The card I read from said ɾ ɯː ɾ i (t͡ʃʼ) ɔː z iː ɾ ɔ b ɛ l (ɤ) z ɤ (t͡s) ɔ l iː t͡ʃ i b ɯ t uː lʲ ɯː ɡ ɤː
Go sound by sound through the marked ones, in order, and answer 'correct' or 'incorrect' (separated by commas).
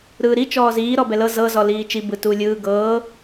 incorrect, correct, incorrect